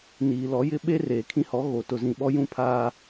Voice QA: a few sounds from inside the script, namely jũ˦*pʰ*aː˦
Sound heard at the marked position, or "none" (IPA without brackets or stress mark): pʰ